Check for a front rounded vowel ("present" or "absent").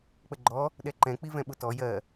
absent